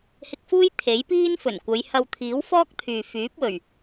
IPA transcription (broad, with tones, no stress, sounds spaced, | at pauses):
h ɪ˧ k̚ f uː˥ j t̪ʰ e˨˥ j p iː˥ n f ɵ˨˩ n kʷ ɐ˨˧ j h ɐ˧ w t̪ʰ iː˨˥ w f ɔː˥ k̚ t̪ʰ yː˨ f yː˨˥ p̚ w ɵ˨˩ ɥ